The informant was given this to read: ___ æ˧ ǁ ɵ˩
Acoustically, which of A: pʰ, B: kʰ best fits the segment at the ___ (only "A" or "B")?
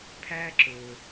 A